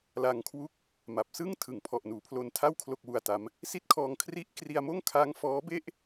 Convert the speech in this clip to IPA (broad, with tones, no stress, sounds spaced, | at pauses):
l a˧ ŋ kʰ w u˥˩ k̚ | m a˨˩ p̚ s ɯ˥˩ ŋ tʰ ɯ˩˦ ŋ pʰ ɔ˨˩ ʔ n uː˩˦ pʰ l o˧ n tʰ a˥˩ w kʰ l o˥˩ k̚ w u˧ a̯ t a˦˥ m | s i˥˩ t̚ kʰ ɔː˧ ŋ kʰ r i˦˥ ʔ k r i˧ a̯ m oː˥˩ ŋ kʰ a˦˥ ŋ f ɔː˦˥ b e˥˩ ʔ